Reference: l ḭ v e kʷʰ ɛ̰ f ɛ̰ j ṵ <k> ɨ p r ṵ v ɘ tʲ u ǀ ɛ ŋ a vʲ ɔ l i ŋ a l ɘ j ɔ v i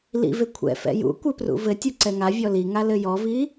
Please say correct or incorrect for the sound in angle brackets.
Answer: incorrect